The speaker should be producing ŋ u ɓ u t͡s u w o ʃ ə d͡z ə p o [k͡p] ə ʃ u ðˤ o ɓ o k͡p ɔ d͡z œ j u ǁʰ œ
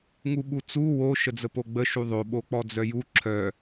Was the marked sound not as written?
yes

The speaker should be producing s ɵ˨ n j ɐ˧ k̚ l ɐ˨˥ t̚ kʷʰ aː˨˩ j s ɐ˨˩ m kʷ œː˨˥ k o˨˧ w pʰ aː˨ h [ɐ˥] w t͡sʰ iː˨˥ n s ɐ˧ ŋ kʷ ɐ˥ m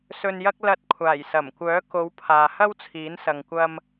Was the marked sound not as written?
no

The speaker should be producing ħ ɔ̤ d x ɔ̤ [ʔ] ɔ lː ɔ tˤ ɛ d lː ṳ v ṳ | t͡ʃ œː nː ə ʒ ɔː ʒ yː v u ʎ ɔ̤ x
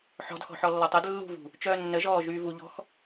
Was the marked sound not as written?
yes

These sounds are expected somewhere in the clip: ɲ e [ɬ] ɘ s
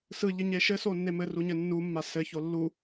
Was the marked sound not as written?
yes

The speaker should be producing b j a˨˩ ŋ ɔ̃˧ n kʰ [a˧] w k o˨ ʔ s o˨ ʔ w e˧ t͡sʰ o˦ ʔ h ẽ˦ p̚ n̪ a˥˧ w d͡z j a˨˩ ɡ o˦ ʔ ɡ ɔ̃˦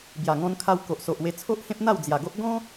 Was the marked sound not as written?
no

